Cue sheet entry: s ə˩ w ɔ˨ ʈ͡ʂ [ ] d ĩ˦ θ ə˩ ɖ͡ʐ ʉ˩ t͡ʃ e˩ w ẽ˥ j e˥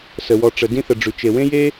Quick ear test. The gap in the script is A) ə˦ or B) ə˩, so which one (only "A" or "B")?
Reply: B